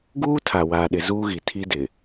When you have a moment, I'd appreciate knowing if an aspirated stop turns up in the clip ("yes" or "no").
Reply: yes